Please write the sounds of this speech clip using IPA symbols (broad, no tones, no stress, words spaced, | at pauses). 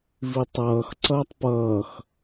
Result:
vitˤʌːx ǀʌːtˤpʌːx